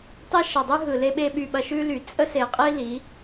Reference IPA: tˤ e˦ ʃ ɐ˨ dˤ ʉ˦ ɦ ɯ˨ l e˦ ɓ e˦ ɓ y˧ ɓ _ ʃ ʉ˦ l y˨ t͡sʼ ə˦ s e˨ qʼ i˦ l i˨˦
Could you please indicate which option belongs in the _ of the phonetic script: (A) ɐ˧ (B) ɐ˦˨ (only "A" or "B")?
A